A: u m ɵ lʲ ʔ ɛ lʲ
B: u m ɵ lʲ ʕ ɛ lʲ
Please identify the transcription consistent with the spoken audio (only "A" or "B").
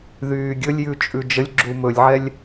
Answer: B